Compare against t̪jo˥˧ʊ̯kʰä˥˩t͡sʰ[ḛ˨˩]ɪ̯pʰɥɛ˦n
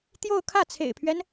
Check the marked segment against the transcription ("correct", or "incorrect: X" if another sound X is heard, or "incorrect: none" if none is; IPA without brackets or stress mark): correct